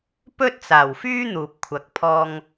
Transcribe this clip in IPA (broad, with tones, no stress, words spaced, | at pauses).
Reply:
pɵ˥t̚t͡saː˨˩wfyː˥ n̪uː˨p̚kʷʰɐ˨k̚pʰɔː˧ŋ